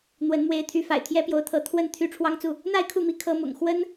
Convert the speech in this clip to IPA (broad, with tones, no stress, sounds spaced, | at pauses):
n̪ w ə˨˦ n m w e˨˦ ɪ̯ t̪ʰ y˨˦ f a̰˨˩ ɪ̯ t̪ʰ j ɛ˦ p j o˨˦ ʊ̯ t̪ʰ ɤ˨˦ t̪ʰ w ə˥˨ n t̪ʰ y˦ ʈ͡ʂʰ w ɑ˦ ŋ t͡s u˥˨ | n̪ a˥˨ ɪ̯ kʰ u˥˨ m i˨˦ kʰ ɤ˨˦ m ʊ̰˨˩ ŋ x w ə˦ n